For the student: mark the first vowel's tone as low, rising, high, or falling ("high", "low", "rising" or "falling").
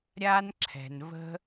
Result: high